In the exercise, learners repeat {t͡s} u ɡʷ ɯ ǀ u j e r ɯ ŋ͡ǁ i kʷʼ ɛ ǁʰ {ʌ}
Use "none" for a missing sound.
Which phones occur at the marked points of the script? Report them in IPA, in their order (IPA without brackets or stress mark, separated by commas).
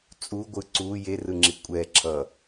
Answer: t͡sʼ, ʌ